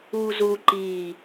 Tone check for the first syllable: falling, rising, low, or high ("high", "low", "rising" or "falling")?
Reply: high